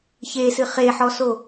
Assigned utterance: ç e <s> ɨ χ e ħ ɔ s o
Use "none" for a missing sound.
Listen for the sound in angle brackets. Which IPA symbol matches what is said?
s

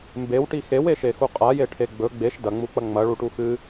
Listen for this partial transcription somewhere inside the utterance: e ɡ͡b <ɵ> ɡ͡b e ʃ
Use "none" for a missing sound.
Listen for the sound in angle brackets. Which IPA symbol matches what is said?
ɵ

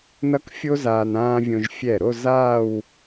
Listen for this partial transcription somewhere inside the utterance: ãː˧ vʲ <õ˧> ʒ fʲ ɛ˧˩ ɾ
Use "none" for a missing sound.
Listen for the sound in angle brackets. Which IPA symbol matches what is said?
õ˧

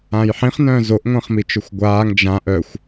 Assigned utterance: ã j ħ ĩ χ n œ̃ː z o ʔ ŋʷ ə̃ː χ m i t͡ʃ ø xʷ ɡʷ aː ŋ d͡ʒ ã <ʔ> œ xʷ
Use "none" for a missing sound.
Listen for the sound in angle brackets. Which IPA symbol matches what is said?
ʔ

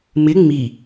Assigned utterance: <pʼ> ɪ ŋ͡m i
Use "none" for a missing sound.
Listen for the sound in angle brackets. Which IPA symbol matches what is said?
m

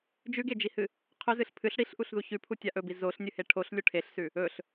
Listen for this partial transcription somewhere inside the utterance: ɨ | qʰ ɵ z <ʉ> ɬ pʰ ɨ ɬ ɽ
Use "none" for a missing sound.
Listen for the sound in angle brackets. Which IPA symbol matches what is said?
ɨ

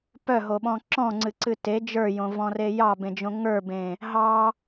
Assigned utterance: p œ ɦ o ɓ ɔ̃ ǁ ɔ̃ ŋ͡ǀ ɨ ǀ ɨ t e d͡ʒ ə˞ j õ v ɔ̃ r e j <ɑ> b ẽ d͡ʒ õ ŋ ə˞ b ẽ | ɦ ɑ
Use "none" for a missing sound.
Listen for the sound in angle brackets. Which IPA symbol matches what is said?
ɑ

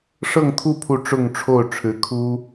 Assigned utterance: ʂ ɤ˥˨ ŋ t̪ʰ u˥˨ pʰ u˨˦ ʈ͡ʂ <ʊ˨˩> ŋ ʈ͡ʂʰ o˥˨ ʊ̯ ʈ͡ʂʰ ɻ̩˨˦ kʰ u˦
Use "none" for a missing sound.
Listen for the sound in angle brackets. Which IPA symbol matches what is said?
ʊ˥˨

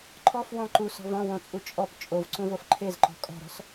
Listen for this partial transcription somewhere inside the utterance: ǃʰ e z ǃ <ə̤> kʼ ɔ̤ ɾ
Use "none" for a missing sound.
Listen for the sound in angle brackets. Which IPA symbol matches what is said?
ɔ̤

